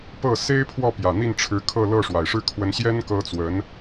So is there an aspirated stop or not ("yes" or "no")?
yes